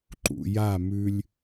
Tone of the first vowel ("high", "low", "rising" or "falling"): low